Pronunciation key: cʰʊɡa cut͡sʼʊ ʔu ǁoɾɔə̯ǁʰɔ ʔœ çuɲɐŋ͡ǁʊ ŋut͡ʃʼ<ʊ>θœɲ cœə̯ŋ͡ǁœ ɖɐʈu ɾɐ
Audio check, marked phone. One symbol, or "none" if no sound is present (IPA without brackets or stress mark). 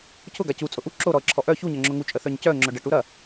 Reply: ə